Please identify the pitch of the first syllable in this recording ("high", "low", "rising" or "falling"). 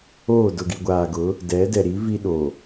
falling